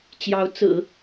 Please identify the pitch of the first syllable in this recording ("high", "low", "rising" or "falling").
rising